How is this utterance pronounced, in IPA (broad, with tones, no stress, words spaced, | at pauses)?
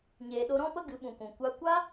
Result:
ɲeː˨ɗo˧ɾɔ̃˦ pə˦ ɡɨ˨˦ɓũ˨kʷũ˨ kʷa˦ kʷa˦